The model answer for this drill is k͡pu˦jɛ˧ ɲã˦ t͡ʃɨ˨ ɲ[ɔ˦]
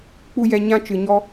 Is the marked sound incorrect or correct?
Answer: correct